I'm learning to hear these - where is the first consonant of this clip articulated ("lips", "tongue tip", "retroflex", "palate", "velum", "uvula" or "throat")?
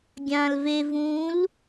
velum